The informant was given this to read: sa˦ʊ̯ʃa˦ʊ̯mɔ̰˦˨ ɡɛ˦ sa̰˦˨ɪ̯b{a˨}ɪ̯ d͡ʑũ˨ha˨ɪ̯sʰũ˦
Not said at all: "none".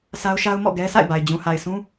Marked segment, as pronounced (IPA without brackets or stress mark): a˨